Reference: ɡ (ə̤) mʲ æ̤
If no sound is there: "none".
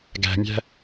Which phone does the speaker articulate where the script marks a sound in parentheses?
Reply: æ̤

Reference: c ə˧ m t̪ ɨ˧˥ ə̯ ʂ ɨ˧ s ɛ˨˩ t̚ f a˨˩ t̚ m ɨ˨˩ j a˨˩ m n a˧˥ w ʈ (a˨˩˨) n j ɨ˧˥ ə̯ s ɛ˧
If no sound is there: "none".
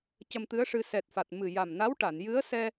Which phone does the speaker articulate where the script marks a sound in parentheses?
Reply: a˨˩˨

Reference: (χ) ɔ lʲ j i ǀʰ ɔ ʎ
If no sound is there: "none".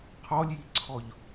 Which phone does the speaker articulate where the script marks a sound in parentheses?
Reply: qʰ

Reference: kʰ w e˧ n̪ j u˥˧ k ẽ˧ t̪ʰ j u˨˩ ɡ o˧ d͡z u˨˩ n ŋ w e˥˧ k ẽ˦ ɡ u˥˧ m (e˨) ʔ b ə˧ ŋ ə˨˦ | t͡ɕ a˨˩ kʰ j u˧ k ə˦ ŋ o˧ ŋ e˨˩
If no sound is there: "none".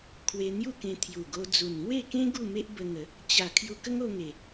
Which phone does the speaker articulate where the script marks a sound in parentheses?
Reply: e˦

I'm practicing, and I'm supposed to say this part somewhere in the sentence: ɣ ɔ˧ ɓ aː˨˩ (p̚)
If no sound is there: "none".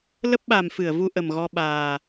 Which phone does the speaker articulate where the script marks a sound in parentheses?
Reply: none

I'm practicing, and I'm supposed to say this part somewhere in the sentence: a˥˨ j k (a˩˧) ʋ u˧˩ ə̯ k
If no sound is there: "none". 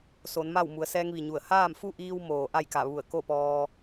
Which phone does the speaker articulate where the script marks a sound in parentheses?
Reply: a˧˩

